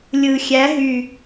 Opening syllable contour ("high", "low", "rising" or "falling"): low